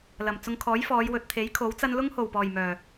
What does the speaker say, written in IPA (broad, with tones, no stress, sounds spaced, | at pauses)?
l ɐ˨˩ m t͡s ʊ˧ ŋ kʰ ɔː˨˥ j f ɔː˨˧ j w ɵ˨ t̚ t̪ʰ e˨˥ j kʰ o˨˥ w t͡s ɐ˥ n l ʊ˥ ŋ h o˨˩ w p ɔː˨˩ j m œː˨˩